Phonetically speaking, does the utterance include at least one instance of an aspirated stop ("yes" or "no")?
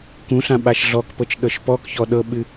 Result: no